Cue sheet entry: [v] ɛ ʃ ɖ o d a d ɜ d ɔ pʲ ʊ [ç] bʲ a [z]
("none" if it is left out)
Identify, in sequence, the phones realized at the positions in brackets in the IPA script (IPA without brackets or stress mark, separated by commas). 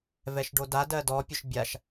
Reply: v, ʃ, ʃ